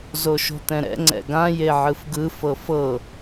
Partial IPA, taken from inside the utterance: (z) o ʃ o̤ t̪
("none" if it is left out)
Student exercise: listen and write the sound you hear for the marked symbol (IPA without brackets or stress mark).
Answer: z